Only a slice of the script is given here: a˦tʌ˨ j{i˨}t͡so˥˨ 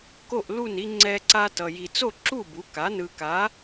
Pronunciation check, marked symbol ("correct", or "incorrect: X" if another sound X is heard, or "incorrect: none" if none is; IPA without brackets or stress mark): correct